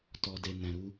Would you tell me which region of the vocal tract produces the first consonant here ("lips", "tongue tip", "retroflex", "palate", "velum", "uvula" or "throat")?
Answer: tongue tip